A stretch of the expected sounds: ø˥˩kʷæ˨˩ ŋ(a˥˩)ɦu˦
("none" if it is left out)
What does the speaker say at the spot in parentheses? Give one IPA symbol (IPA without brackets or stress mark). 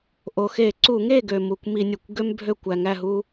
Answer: æ˥˩